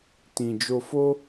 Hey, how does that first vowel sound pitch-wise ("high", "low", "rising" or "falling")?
low